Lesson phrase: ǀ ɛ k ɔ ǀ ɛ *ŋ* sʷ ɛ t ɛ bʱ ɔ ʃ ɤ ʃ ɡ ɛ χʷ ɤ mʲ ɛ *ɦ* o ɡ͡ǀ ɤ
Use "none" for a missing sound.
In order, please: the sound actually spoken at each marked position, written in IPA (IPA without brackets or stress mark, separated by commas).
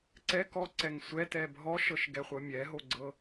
ŋ, ɦ